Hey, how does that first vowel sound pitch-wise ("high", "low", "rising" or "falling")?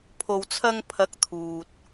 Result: low